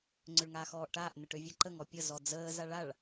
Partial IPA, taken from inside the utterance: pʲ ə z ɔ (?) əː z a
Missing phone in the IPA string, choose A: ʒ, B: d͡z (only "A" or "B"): B